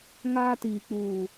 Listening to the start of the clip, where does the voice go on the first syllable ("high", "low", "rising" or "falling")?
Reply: high